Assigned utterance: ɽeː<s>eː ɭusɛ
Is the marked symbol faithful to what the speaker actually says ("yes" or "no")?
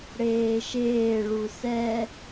no